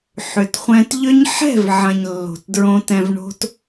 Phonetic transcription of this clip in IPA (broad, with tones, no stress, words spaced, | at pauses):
ħʏ˨t χʷɛ̃˧tʎʏ˦ɲ ħɛ̤˦˨vʕɐ̃˨ɲ lːo̤˨tdɹõ˧tɛ̃˧vɳo̤˦t